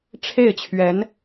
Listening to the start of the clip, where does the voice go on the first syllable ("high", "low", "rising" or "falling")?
falling